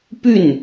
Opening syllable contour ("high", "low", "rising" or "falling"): falling